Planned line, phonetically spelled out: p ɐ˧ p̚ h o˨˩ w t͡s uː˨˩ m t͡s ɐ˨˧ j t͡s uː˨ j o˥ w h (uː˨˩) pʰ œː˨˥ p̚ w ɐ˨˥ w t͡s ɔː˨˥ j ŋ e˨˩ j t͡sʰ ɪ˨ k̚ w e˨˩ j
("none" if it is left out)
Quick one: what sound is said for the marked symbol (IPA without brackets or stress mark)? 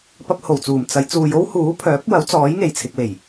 uː˨˥